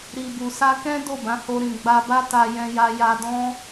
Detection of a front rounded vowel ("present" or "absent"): absent